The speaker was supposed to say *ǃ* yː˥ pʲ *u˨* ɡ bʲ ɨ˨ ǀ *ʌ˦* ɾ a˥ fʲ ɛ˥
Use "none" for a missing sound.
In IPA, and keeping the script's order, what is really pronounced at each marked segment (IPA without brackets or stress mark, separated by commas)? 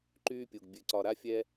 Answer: ǃ, u˨, ɒ˦